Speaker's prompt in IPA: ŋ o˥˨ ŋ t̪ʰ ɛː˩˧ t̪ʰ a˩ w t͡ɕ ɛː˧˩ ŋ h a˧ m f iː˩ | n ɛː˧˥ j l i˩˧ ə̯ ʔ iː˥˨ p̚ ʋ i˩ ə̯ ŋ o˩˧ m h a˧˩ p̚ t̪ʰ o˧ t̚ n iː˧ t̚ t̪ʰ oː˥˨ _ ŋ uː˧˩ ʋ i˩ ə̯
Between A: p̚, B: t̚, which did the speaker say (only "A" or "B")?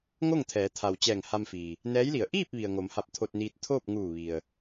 A